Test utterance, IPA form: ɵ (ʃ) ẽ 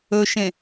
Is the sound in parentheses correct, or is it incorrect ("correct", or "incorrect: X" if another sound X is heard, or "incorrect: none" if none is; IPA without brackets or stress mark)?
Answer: correct